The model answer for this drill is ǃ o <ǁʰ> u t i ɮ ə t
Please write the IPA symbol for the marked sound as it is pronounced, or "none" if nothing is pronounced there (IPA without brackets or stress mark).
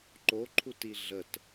ǃʰ